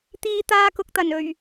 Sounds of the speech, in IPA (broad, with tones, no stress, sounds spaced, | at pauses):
t̪ iː˧ t̪ aː˧ k ʊ˨ k̚ t̪ ɐ˨˩ n ɵ˨˩ ɥ